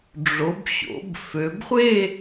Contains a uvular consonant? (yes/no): yes